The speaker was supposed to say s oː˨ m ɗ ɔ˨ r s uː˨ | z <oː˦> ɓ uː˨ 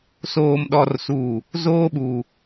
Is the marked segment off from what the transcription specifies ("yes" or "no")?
no